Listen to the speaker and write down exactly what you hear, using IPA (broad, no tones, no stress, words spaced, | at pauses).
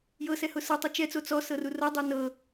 jɤsɛhʊ sɤtˤu t͡ʃɛt͡so t͡sɔsɤru rɤdˤɛ nɤ